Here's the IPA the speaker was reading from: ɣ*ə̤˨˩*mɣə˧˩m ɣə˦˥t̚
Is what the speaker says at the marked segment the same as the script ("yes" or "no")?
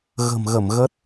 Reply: yes